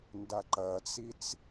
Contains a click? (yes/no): yes